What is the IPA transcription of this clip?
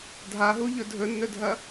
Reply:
dʱaɦuʎɵ dʱɵnːɵdʱɐ

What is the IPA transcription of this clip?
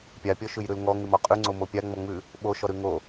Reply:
pʲapʲɔʃʉjɾʉl ŋɔŋʉmɔ qʼʉŋ͡ǀomo pʲaŋ͡mɔŋ͡mʉ | ɓoʃɔɾʉ ŋo

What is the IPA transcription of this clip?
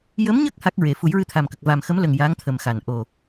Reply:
jə˧˥mɲə˦˥k̚ ha˦˥k̚ɹe˨˩˦ fu˨˩˦jɹɨ˧t̪ʰa˨˩m kə˨˩k̚va˨˩mxə˧˥mlə˨˩ŋ ja˧˥ŋt̪ʰə˨˩mxa˨˩˨n ʔo˨˩

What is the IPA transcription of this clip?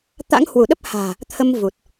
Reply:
t̪a̰˧˥ŋhwu˧˩ɗə˦˥p̚ha̤ː˨˩ | t̪ʰə˧m vu˨˩t̚

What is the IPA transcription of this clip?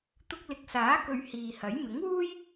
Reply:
t̪ʊ˧k̚lɪ˨˥k̚saː˨˥kɵ˨ɥ hiː˨hɐ˨˥j mɪ˨˥ŋwuː˥j

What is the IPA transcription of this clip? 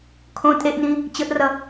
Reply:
kʰõ tʼeʔnĩ | t͡ɕəʔrʌ

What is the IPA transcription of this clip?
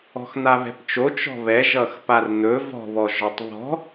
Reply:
ɔ̤xn̪aβɛ̤pt͡ʃo t͡ʃɔ̤βɛʒʌxpar n̪ɵ vɔ̤βɔ ʒɔtˤβɔ̤

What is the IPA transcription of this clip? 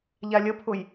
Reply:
ʎalʲəpʰʊj

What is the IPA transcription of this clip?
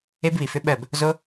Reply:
e˦bβi˨fʏ˦ɓɜ˦˨b | zo˦

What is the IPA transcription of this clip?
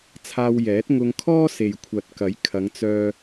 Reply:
t͡sʰaː˧wjɛː˨˥t̚ŋʊ˧ŋkʰɔː˥ se˨jkʷʰɐ˨t̚kɐ˨˥j kʰɐ˨˧ŋ t͡sœː˧

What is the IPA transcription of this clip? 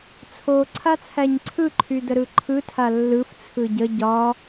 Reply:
t͡sʰo ǀʰat͡sʰæɲǀʰɯ ǃʰydəɾɯǃʰɯ tʰalːɯf t͡sʰɯɟə ɟɒ

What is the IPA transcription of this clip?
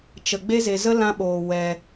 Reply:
t͡ʃə˧ ɡ͡be˦ze˧zə˦ lã˦ɓoː˧ wɛ˧

